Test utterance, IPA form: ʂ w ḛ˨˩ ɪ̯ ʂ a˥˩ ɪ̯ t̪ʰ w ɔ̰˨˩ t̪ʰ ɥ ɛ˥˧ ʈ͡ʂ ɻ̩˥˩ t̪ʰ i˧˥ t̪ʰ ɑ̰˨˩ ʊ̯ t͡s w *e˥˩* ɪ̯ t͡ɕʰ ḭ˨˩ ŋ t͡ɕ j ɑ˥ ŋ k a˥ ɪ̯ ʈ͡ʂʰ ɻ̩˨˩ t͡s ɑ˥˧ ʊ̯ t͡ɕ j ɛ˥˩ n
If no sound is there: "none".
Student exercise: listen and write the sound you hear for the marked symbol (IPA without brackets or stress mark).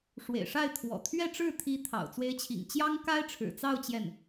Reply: e˧˥